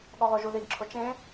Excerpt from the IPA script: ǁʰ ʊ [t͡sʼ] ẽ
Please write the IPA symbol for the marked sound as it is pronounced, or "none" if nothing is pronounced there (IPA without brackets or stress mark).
t͡ʃ